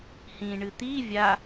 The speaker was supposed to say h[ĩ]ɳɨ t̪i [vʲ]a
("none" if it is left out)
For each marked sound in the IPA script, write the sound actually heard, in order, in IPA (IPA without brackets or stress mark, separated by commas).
ĩ, vʲ